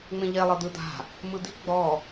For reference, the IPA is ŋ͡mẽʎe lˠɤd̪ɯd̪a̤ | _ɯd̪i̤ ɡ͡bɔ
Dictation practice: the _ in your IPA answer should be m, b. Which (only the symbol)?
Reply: m